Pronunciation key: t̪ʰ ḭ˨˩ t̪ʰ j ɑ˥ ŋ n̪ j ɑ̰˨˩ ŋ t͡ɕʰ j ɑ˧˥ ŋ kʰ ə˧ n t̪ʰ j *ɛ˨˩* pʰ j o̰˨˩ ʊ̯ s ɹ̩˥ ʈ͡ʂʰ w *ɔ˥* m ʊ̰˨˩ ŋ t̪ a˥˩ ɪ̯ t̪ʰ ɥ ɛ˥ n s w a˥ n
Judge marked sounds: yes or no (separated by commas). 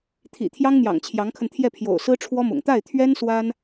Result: no, yes